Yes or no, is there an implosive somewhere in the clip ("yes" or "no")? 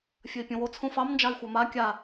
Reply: no